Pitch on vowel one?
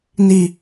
high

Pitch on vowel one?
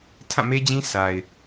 falling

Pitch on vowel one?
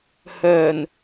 low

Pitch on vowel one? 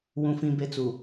high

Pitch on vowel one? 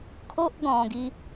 high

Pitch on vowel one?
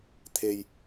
low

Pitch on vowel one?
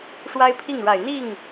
high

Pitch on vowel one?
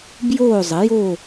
falling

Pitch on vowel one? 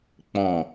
low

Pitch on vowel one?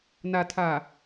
low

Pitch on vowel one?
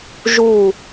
falling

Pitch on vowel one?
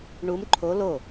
rising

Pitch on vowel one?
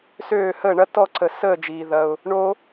falling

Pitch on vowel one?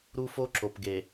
high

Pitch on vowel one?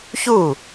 falling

